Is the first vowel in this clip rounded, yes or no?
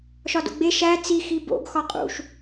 yes